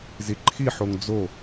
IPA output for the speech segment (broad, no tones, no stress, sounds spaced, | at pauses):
z i ǃʰ i ħ o ŋ d͡z o